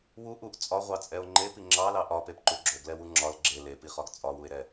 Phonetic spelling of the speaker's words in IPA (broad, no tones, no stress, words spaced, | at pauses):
wu ʔuʔ t͡sʼɒʁʷɑt͡sʼɛo̯ ŋ͡ǃepi ŋ͡ǁɑlɑ ʔɒpepǃu ɡ͡ǁoɡlɛwu ŋ͡ǁɒl ɡ͡ǁe lepiχɒɡ t͡sʼɒwue̯ɾɛ